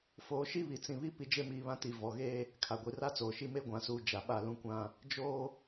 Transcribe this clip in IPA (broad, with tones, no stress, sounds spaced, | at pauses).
f oː˨ ʃ i˦ β i˨ t͡s ĩ˨ β i˦ p i˨ d͡ʒ e˦ m iː˨ β ã˦ t i˨ v ɔ˨ ɣ eː˦ | kʰ a˨ ɡʷ i˨ r a˦ t͡s oː˨ ʃ i˦ m e˦ ɡʷ ã˨ s uː˨ d͡ʒ a˨ ɓ a˦˨ l ũ˦ kʷ ã˦ | d͡ʒ oː˦